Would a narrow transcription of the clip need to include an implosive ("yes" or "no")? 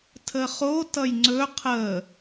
no